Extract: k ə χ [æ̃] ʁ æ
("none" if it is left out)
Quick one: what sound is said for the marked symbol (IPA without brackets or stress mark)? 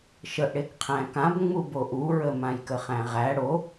æ̃